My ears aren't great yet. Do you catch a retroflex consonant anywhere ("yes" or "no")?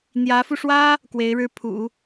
yes